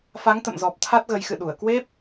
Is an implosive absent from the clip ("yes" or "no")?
no